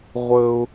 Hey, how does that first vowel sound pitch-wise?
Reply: low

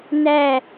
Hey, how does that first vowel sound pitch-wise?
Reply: falling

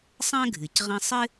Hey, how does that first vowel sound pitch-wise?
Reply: high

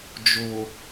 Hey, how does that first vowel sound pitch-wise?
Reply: low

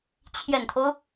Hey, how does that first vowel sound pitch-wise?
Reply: low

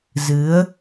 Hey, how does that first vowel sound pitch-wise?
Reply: rising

